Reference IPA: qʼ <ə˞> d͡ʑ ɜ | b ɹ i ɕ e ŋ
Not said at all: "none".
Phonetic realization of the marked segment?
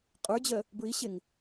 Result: ə˞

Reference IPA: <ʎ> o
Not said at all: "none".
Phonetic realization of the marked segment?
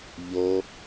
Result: ʎ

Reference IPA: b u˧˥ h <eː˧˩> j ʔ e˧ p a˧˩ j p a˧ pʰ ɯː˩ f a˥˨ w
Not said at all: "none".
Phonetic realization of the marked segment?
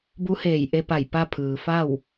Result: eː˧˩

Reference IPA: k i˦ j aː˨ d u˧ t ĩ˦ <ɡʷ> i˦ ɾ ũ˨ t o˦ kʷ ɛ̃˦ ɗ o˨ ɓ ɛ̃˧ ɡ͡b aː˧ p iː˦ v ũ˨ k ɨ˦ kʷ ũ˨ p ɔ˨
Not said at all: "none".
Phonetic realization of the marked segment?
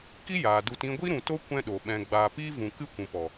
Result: ɡʷ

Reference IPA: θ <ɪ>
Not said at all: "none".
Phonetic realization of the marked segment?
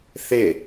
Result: ɪ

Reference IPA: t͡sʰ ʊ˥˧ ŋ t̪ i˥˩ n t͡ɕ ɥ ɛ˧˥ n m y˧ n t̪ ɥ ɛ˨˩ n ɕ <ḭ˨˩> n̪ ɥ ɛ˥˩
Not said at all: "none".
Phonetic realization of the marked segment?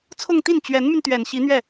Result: i˧˥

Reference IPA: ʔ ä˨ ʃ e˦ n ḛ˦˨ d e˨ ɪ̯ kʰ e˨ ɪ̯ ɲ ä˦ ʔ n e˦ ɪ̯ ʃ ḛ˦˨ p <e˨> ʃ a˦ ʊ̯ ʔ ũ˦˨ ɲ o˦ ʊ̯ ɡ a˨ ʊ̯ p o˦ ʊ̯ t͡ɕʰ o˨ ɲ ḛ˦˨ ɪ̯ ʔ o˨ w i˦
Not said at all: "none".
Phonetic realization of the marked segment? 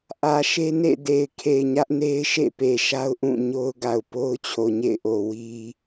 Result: e˨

